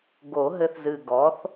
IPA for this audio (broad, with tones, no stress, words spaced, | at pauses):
ɡo˨˩˦ɦɘ˧θzɨ˨˩ ɡɔ˩˥θ